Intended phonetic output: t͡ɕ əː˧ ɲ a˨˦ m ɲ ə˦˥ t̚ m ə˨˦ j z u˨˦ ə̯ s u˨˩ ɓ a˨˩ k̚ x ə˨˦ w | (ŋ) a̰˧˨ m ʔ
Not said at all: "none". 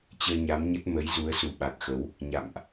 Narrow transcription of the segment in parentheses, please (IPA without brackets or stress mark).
ɲ